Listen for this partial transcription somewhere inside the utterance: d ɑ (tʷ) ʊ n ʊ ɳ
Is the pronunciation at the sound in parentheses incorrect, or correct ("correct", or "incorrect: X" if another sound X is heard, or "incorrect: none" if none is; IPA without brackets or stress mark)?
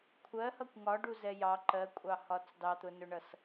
incorrect: t̪